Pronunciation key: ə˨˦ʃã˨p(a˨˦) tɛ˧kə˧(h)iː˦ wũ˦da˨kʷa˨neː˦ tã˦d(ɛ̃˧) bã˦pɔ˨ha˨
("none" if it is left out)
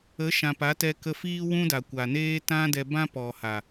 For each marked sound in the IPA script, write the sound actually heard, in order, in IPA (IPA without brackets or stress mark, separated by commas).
a˨˦, f, ɛ˧